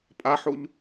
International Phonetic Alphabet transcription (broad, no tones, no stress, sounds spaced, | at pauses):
pʼ a ħ u ʎ